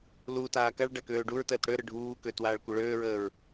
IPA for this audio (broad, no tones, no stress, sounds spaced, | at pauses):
l u t aː k a ɭ ɖ a k øː ɖ u ɹ t əː t ɽ ø ɾ ə ɖʱ uː k ø t w aː ɭ kʷ ə ɭ øː ɹ əː ɹ